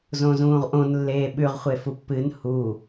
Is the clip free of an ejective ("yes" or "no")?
yes